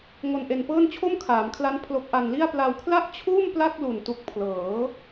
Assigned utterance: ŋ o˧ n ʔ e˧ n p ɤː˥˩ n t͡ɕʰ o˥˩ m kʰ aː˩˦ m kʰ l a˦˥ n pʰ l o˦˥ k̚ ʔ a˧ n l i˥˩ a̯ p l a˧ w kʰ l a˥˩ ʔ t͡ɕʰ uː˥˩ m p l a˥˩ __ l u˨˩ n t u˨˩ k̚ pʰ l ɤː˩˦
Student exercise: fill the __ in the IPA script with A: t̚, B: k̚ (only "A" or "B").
B